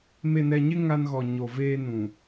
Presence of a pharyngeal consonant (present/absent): absent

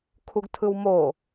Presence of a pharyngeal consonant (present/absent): absent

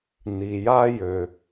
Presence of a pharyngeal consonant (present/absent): absent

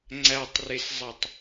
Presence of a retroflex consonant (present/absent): absent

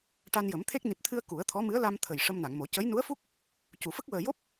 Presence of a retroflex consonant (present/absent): present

